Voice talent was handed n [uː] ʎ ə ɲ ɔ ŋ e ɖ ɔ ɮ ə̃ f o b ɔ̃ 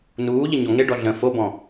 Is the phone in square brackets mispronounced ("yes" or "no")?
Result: no